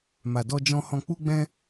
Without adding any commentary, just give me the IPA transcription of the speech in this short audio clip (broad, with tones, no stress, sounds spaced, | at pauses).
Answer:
m a˨ d ɔ˧ d͡ʒ ɔ̃˧ h ɔ̃˧ k͡p u˦ ɡ͡b ɛ̃˦